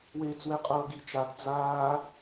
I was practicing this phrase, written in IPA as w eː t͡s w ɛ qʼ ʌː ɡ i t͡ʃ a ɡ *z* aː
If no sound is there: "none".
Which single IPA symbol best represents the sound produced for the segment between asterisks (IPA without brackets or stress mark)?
d͡z